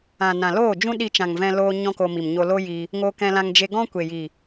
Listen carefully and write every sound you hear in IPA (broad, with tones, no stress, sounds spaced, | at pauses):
ã˨ n ã˨ l oː˦˨ d͡ʒ ũ˦ ɗ i˧ t͡ʃ ã˨ ŋ v ɛ̃˧ l oː˦ ɲ ɔ̃˦ k o˧ m i˨ m ɲ o˧ l o˦ j i˧ | ŋ o˧ k ɛ̃˧ l ã˧ ŋ d͡ʒ e˧ ɡ ɔ̃˦ kʷ e˨ j i˨